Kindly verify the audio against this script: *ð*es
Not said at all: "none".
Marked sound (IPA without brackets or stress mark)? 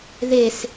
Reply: ð